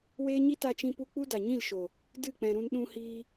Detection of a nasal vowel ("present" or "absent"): present